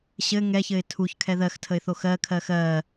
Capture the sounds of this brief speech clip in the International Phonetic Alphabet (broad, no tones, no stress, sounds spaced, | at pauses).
ɕ ɘ ŋ ɛ ç ɘ ɪ̯ tʰ u ç kʰ ɛ ð ɜ x tʰ ə ɪ̯ θ o x ɜ kʰ ɜ x ɜ